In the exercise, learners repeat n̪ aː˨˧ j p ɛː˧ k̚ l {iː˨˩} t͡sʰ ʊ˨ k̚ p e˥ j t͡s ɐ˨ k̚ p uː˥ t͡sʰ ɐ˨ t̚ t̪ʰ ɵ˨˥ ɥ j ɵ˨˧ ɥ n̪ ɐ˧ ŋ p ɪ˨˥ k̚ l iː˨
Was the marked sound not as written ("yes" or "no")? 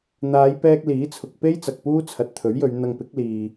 yes